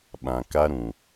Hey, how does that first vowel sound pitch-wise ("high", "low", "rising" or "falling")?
low